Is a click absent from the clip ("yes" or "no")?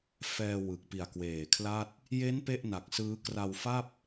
yes